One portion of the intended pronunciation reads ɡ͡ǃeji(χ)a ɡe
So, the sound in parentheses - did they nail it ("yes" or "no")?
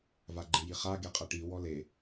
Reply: yes